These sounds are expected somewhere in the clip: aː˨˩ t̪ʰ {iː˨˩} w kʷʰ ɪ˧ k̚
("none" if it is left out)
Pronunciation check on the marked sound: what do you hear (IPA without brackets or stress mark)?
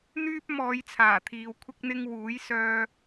iː˨